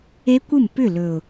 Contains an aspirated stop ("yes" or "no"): no